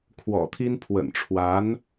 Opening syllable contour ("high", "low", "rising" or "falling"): low